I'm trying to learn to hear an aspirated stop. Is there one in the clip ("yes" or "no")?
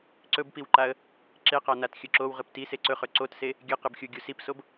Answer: no